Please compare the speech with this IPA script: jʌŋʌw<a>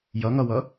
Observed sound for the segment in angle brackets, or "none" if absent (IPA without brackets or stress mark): ʌ